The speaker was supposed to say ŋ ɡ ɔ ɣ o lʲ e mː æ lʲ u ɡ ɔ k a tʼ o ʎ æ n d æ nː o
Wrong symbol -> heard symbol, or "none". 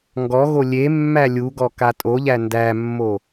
nː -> mː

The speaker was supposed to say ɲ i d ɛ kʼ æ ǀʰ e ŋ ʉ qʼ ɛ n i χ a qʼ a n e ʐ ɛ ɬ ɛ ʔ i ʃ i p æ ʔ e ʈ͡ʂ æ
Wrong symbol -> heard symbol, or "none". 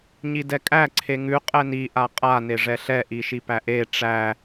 χ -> ʔ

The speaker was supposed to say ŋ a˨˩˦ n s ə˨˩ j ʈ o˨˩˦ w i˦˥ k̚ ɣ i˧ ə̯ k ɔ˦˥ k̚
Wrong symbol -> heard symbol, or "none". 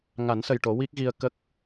ɔ˦˥ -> ə˦˥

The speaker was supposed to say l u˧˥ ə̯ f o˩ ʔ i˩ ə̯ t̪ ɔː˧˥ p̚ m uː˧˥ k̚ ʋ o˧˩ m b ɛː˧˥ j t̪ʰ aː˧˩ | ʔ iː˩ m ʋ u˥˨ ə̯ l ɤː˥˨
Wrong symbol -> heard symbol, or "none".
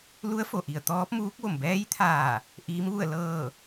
iː˩ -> iː˧˥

